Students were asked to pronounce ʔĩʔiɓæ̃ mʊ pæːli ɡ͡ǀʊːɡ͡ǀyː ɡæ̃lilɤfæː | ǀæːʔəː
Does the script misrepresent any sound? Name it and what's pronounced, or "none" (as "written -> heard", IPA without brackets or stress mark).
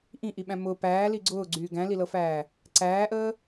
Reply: none